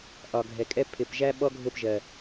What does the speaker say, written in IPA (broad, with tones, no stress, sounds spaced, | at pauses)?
ʔ ɒ˨ ɡʱ ɛ˨ kʼ ɛ˦ pʰ ɪ˨ p ʒ æ˦ ɓ ɔ˦ ɡʱ ʊ˦˨ p ʒ ɜ˨